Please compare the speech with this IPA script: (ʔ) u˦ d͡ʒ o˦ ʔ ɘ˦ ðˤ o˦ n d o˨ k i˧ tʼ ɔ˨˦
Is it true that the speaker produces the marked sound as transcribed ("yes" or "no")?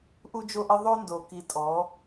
yes